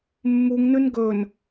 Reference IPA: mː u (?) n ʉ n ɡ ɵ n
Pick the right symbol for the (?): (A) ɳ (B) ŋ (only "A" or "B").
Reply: B